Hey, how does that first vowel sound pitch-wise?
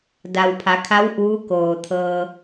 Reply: low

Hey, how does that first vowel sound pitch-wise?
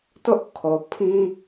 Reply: high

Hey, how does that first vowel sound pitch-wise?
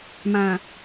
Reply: low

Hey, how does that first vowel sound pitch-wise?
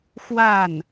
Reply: falling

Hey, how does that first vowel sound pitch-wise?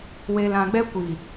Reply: low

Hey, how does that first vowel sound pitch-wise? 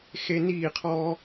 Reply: high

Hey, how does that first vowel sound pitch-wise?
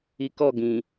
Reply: low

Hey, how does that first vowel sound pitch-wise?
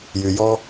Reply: low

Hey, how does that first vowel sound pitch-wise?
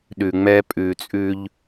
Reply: low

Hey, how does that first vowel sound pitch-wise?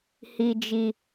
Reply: low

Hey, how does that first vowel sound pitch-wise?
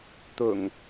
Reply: low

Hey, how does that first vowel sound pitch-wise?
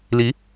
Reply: rising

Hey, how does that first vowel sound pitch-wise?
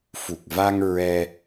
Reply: low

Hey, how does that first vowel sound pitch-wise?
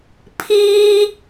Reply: high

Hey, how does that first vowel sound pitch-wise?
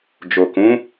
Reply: low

